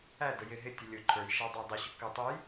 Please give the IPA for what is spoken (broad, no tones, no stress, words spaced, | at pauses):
ædʊ jɪ ɦɪtʲə lʲʊ ǃʰə˞jʃæ dˤædˤʊɕʊ kə tˤuj